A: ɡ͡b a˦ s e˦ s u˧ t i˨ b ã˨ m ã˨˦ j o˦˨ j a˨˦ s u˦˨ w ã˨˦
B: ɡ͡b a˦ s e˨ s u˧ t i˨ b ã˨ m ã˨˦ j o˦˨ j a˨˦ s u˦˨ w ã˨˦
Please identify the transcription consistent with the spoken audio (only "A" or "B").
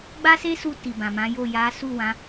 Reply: A